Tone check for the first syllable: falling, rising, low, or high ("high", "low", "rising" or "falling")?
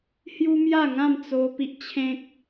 high